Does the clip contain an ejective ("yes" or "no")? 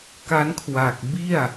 no